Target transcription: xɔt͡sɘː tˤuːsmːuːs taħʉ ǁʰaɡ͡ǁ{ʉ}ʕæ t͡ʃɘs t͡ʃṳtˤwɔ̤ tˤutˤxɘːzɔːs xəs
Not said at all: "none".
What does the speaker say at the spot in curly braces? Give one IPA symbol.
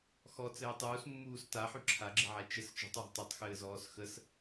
ɘ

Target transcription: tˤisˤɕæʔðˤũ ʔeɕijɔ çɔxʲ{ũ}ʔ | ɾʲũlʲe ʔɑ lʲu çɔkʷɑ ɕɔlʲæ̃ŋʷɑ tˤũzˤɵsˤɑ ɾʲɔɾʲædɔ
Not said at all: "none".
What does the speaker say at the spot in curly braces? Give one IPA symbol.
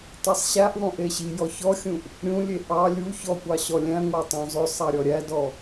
ũ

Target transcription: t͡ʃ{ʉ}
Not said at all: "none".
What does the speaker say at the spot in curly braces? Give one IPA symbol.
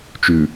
ʉ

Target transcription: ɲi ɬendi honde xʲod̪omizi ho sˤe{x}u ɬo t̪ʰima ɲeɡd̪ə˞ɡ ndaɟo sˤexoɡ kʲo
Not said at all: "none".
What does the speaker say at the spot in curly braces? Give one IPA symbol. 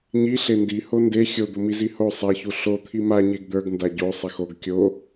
ç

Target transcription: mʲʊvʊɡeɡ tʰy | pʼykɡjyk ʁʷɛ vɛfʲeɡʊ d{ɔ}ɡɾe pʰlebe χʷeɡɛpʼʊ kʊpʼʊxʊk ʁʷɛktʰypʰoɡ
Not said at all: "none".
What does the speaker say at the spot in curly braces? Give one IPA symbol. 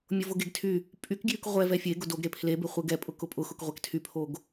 o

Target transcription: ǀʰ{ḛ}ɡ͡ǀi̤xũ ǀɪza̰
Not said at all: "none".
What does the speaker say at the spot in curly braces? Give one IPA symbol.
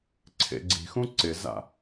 ḛ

